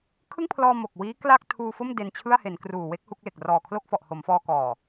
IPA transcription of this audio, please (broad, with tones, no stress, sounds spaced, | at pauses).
kʰ ɯ˥˩ ŋ pʰ l ɔː˧ m o˨˩ k̚ w iː˦˥ k l a˥˩ k̚ tʰ uː˧ f o˥˩ m d e˧ n t͡ɕʰ ɯ˥˩ a̯ h e˩˦ n k r uː˨˩ w e˦˥ k̚ h u˥˩ k̚ l e˨˩ k̚ r ɔː˨˩ kʰ l o˥˩ k̚ f ɔ˨˩ ʔ h o˩˦ m f ɔː˧ k ɔː˨˩